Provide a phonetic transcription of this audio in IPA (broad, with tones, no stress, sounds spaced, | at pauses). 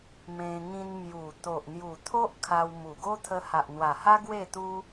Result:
m ẽ˧ ŋ ĩ˧ n m j u˨˩ t̪ o˨ ʔ n̪ j u˨˩ t̪ʰ o˦ ʔ kʰ a˧ w m u˨˩ ɡ o˦ t̪ʰ ə˧ h a˨ ʔ n̪ w a˨˩ h a˦ ɡ w e˥˧ t̪ u˦